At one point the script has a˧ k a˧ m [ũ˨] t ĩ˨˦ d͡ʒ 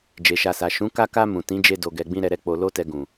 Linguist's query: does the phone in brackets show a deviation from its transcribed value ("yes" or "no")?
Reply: no